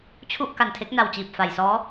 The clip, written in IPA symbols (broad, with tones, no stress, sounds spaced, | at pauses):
t͡ɕʰ u˥˩ ʔ k a˨˩ n tʰ e˦˥ k̚ n a˧ w t͡ɕ iː˨˩ p̚ f a˨˩ j s ɔː˦˥